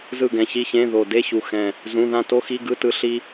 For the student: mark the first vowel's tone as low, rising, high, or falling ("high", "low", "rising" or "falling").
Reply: falling